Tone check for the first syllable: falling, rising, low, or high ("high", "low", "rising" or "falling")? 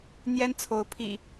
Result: high